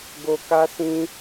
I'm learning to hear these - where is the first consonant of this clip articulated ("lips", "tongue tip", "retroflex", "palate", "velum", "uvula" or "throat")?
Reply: velum